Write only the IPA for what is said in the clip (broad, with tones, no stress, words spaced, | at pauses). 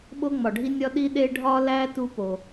ɓo˥ŋ͡mɒ˩ɖʱi˥nʲɒ˥ ɗi˥ɗe˥ ɖʱɒ˥læ˥ tu˥po˩